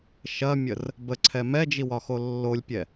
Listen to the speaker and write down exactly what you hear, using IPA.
ʃ ɐ mʲ ə r | b ə ǀʰ ɛ m ɛ d͡ʒ i w ɒ x o lː o lʲ pʲ ɛ

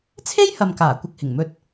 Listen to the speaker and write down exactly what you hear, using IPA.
t͡sʰ e˥ j h ɐ˨ m k aː˨˩ kʷ ɐ˧ k̚ h ɪ˨˩ ŋ m ɵ˧ t̚

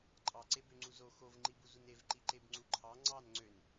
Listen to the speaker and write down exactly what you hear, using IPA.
ǃʼ ɑ ǀ e b ø ŋ͡ǀ u z o x o v ŋ͡ǃ i b u z u n e v ǃ i ǃ e b ŋ͡ǀ u ǃʰ ɑ ŋ͡ǀ ɑ n ŋ͡ǀ ø n

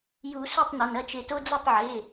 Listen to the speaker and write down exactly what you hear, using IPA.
j u˨˩˦ s u˥˩ tˤ n ɐ˩˧˩ n ɐ˥˩ t͡ʃ e˧˩ t o˦ d͡z ɐ˥˩ tˤ ʕ e˩˧˩

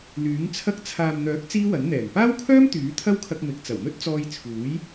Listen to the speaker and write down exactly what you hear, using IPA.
l yː˨˥ ŋ t͡sʰ ɐ˥ k̚ t͡sʰ aː˨ m n̪ œː˨˥ k̚ t͡s iː˥ w ɐ˨˥ n n̪ ɛː˨˩ ŋ p aː˥ w kʰ œː˥ m t̪ yː˨˥ t̪ʰ ɐ˥ w kʰ ɐ˧ k̚ m ɪ˨˥ k̚ t͡s ɐ˨˩ w n̪ ɵ˥ t̚ t͡s ɔː˧ j t͡sʰ uː˨˥ j

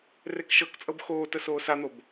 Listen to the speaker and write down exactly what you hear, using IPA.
r e k ʃ ɤ k t͡sʼ ɤ b x oː t ə s oː s a n̪ o b

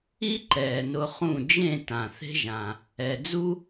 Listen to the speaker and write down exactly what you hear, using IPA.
i˦ ǃ ɛː˨ n ʊ˧ χ ũ˦˨ d͡ʒ ẽ˦˨ t ã˨ θ e̤˦ ʒ ã˨ | ɛ˨ d͡z u˦

